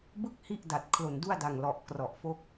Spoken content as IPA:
b ɯ˥˩ k̚ h i˥˩ ʔ d a˨˩ t̚ kʰ l o˨˩ n d u˥˩ a̯ d a˨˩ ŋ l ɔ˨˩ ʔ k r ɔ˨˩ ʔ f o˥˩ k̚

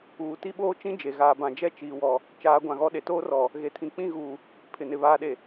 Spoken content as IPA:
uː˨ t i˦ ɓ oː˦ t͡ʃ ĩ˦ d͡ʒ e˨ ɣ aː˨ b ã˨ d͡ʒ ɛ˦ t͡ʃ iː˨ w ɔ˨ | t͡ʃ aː˨˦ ɡʷ ã˨ ɣ ɔ˦ ɗ e˨ t oː˦ r ɔ˨ | ɣ e˨ tʰ ĩ˨ k͡p ĩ˦˨ ɣ uː˨ | pʰ ɪ˨ n ɪ˨ β aː˨ ɗ e˨

